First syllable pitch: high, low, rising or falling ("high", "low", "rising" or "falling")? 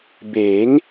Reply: rising